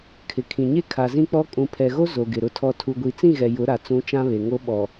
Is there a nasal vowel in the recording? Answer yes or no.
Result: yes